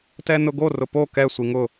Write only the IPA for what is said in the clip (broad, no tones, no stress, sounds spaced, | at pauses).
t ɛ n ʊ ɡ o r ʊ p o k ɛ sʷ i ŋ ʊ